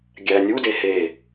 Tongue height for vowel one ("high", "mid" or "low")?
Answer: low